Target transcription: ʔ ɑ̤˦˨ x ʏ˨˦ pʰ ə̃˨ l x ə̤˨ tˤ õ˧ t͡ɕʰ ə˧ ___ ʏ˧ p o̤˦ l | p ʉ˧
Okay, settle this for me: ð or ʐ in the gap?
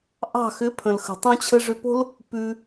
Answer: ʐ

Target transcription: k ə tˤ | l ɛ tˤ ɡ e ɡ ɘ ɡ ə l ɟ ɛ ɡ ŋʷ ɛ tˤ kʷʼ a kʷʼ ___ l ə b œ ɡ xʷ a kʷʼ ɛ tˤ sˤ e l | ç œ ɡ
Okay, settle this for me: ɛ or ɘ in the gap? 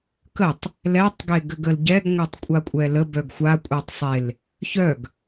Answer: ɛ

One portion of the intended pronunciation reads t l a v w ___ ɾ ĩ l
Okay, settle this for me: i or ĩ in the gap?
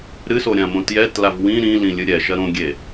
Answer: ĩ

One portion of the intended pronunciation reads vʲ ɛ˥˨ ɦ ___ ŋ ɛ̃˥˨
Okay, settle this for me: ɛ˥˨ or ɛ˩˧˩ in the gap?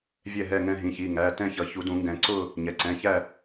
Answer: ɛ˥˨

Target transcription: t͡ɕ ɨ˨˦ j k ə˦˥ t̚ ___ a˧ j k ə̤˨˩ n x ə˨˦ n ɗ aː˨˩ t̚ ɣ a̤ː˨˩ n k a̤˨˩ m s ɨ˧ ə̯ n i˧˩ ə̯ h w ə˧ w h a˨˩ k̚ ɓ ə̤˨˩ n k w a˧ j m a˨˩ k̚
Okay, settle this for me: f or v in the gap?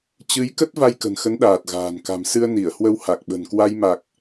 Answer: v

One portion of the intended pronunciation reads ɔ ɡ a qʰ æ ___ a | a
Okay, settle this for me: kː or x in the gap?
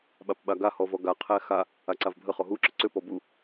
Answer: x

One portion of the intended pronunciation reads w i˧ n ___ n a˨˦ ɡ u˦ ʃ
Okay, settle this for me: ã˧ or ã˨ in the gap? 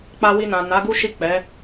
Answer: ã˨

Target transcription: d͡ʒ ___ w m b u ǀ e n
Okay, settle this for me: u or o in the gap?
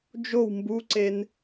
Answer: o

